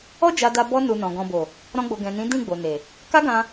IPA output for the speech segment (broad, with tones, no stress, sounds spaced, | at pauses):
ɔ˦ d͡ʒ a˧ d a˧ b ɔ˦ n u˧ n ɔ̃˨ ɡ ɔ̃˨ b o˨ | ɾ ɔ̃˦ ɡ͡b o˧ ɡ ɛ̃˨ n ĩ˨˦ d ĩ˦˨ ɡ͡b o˨ n e˨ | k a˦ ɡ ã˧